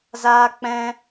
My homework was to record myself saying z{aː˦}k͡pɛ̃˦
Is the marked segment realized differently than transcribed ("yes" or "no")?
no